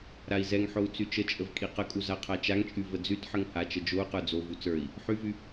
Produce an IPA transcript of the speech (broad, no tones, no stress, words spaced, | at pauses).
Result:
ɾai̯zɛŋħou̯ t͡syt͡ʃət͡ʃʼəv kʼiqəkʼu zaqʰat͡ʃaŋt͡ʃʼy vəd͡zytħəŋ hat͡ʃə d͡ʒou̯qə˞ d͡zovu t͡sə˞i̯ | ħyvy